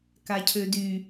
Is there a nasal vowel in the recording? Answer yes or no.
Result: no